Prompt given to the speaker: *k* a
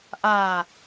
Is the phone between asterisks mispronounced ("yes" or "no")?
yes